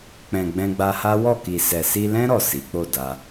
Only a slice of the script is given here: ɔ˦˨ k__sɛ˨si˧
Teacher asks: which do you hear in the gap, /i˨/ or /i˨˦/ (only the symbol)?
i˨